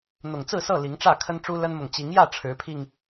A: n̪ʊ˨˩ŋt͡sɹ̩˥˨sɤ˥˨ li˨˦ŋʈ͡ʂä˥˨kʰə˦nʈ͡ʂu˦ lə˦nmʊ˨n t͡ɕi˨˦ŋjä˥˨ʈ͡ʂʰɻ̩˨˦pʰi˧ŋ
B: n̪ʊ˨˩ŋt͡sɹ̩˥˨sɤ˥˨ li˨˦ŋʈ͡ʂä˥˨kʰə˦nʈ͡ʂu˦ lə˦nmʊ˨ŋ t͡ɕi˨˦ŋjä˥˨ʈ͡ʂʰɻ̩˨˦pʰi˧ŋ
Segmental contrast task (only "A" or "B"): B